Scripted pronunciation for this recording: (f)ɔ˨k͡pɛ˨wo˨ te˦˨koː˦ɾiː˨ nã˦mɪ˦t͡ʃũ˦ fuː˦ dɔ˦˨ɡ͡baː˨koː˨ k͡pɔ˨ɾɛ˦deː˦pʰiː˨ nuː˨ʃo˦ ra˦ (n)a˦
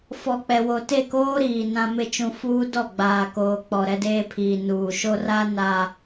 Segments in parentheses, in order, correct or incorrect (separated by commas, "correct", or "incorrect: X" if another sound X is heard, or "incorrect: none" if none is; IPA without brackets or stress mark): correct, correct